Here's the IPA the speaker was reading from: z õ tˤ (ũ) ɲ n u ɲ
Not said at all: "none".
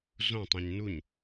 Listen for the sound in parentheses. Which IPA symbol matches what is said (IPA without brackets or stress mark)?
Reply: ũ